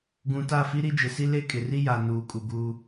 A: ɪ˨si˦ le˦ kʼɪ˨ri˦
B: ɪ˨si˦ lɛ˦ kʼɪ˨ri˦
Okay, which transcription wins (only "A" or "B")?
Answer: A